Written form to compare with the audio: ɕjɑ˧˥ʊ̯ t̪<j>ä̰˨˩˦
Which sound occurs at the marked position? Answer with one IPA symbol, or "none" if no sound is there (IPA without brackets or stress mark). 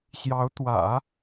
w